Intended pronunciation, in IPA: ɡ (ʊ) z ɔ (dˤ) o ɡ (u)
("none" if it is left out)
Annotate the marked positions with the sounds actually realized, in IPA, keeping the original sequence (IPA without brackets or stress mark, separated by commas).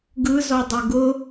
ɯ, dˤ, ʊ